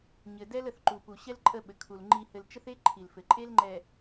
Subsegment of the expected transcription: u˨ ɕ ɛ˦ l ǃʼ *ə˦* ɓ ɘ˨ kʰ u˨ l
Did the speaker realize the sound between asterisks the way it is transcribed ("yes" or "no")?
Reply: no